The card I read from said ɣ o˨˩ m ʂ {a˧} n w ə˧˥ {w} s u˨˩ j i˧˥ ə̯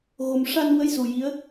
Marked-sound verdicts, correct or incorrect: correct, incorrect

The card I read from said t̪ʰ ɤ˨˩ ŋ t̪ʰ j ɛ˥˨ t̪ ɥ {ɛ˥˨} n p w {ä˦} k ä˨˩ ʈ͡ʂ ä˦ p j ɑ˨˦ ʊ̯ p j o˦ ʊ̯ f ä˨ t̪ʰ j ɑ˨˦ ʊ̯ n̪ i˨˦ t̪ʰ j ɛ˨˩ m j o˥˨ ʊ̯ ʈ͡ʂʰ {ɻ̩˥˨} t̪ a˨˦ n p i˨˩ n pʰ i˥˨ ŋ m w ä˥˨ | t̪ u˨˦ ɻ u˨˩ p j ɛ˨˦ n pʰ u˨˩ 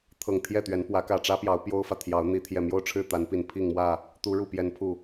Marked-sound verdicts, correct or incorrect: incorrect, incorrect, correct

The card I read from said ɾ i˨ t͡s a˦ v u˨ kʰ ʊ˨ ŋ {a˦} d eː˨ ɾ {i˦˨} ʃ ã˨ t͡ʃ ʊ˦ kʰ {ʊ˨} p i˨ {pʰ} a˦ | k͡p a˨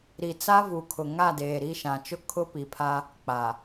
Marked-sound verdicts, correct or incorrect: incorrect, correct, incorrect, correct

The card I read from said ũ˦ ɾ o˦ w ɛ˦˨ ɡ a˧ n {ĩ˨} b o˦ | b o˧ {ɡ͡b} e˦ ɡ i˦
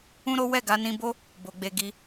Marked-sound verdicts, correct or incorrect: incorrect, correct

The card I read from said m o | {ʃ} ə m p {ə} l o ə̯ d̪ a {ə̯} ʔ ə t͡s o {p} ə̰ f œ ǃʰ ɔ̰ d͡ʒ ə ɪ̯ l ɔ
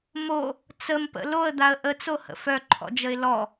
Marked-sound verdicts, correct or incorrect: incorrect, incorrect, correct, incorrect

